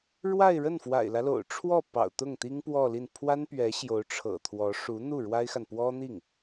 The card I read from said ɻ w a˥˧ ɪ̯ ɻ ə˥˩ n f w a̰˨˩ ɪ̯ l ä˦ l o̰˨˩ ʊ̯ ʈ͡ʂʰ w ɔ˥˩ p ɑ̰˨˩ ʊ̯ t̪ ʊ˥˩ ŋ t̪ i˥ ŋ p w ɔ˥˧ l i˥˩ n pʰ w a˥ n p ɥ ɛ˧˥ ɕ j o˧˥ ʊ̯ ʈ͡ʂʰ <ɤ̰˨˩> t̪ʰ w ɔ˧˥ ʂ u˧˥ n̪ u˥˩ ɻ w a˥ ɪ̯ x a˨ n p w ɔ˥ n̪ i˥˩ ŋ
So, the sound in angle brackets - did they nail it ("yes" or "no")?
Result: yes